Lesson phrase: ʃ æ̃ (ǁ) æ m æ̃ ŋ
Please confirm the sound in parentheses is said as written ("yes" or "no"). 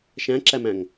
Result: yes